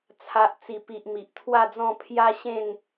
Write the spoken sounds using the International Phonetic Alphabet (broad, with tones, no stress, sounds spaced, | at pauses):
t͡sʰ a˨ ʔ t͡s i˨˩ p i˨ ʔ m i˨ ʔ t̪ʰ w a˥˧ d͡z ɔ̃˥˧ pʰ j a˦ ɕ ẽ˥˧ n